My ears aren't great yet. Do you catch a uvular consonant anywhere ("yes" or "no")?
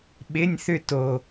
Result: no